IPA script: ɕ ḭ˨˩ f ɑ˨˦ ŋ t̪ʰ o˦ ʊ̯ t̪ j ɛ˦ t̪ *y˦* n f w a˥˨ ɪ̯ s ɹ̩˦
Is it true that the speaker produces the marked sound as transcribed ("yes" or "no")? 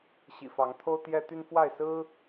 yes